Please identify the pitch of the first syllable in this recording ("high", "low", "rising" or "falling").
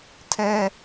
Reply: high